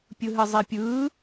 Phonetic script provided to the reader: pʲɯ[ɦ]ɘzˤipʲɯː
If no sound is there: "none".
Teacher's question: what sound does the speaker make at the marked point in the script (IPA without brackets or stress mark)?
ɦ